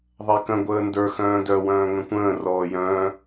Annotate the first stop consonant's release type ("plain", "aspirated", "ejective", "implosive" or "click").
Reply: plain